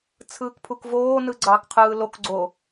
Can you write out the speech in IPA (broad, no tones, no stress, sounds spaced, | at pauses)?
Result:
t͡sʰ ɯː k pʰ u k v oː n ɯ ɡ͡ǀ ɑː k qʰ ɯː l o k ɡ͡ǀ o